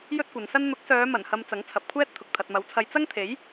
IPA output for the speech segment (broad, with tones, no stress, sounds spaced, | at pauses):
j ɵ˥ t̚ kʷ ɐ˨˧ n s ɐ˥ n n̪ ʊ˨˥ k̚ s œː˨˧ m ɐ˨˩ n h ɐ˨ m t͡s ɐ˨˥ ŋ t͡sʰ ɐ˨ p̚ kʷʰ ɛː˥ t̚ t̪ʰ ʊ˨ k̚ t̪ʰ ɐ˨ t̚ m ɐ˨˥ w t͡sʰ ɐ˧ j t͡s ɐ˥ ŋ t̪ʰ e˨˥ j